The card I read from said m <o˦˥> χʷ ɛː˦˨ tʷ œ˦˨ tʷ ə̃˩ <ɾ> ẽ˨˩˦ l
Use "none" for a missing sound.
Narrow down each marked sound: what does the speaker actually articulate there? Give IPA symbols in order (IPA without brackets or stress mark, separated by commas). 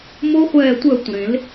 o˦˥, ɾ